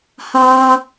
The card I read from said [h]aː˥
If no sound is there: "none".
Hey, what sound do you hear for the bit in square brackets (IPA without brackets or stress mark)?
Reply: h